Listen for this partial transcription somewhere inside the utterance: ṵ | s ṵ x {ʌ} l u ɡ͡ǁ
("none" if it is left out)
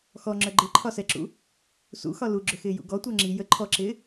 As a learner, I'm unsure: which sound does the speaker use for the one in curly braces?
ɒ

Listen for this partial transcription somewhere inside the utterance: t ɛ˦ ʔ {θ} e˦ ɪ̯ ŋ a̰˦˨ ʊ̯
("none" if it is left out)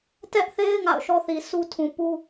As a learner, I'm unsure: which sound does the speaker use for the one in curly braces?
θ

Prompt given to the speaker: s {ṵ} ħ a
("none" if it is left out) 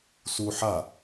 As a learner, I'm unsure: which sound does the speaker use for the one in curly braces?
u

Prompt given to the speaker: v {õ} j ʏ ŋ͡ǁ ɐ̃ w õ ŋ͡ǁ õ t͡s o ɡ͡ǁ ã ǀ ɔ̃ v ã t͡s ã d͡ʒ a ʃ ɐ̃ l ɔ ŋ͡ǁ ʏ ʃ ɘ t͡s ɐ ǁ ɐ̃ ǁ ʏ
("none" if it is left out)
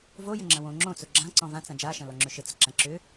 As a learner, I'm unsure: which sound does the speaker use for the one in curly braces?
o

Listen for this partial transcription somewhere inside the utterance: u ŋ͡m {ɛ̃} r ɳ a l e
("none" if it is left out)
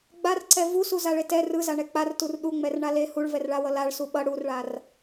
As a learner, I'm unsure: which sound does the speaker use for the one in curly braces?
ɛ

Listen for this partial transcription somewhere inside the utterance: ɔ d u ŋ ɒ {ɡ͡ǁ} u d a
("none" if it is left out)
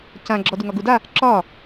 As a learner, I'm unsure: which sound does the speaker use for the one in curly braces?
ɡ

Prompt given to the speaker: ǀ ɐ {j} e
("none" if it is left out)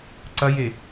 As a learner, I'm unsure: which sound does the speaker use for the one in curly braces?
j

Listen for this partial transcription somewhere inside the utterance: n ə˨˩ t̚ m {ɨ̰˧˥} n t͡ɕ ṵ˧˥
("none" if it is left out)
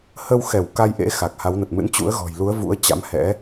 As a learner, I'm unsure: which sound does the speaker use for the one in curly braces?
ɨ̰˧˥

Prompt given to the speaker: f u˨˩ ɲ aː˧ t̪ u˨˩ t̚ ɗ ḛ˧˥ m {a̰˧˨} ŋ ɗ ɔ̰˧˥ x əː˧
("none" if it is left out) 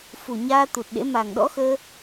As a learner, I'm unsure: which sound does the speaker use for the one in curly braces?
a˨˩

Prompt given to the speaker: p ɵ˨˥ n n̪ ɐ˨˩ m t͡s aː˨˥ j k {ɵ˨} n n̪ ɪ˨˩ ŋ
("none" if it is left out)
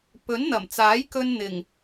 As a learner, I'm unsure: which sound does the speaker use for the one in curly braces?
ɵ˧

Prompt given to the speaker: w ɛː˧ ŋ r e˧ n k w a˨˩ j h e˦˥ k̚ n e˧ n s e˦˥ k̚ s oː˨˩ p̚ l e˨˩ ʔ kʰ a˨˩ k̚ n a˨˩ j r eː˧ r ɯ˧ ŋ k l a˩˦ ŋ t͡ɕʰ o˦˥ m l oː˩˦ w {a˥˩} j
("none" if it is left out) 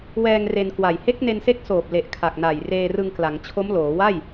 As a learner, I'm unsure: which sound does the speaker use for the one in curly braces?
a˥˩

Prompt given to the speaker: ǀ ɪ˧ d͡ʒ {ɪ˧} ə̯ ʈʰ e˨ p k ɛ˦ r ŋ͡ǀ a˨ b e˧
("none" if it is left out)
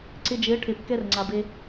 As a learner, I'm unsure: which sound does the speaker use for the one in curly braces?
ɪ˨˦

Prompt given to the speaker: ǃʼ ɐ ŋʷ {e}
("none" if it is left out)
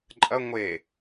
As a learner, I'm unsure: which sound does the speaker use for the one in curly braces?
e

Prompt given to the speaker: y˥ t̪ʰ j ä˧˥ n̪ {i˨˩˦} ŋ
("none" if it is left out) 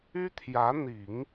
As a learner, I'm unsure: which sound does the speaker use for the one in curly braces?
i˨˩˦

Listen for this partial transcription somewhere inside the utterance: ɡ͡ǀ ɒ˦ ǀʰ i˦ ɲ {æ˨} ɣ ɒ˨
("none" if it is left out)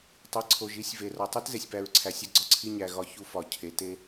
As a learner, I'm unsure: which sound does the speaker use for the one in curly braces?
æ˨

